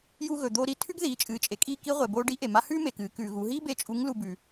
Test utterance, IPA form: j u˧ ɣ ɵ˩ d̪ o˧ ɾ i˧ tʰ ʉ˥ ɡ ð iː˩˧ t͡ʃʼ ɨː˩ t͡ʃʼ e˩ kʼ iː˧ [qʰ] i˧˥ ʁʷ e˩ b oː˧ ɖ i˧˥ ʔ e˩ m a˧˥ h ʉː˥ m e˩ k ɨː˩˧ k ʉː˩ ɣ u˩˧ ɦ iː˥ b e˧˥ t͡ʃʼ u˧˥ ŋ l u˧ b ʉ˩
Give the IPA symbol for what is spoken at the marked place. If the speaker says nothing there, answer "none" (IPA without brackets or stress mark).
k